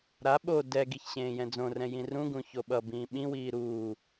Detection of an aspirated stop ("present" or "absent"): absent